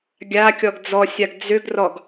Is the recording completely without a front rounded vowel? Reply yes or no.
no